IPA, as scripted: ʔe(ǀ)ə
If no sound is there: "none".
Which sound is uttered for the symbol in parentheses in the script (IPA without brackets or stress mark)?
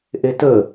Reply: t